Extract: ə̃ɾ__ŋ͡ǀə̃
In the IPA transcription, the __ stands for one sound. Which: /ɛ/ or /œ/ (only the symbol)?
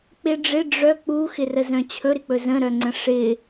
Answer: œ